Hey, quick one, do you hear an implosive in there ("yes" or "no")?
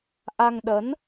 yes